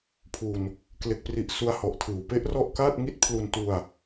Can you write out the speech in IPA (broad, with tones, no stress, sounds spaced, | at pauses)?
pʰ u˧ n | k l e˦˥ k̚ p r i˦˥ ʔ s u˦˥ a̯ h ɔ˨˩ ʔ tʰ ɯː˨˩ w p e˦˥ ʔ r ɔ˦˥ ʔ k aː˥˩ t̚ ŋ i˥˩ t̚ pʰ l u˧ n t u˧ a̯